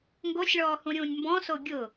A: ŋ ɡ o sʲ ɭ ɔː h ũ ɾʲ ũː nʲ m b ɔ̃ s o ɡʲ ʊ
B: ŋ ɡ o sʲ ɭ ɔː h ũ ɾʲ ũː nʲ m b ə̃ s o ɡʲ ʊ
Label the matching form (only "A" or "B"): A